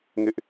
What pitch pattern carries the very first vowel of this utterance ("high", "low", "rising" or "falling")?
high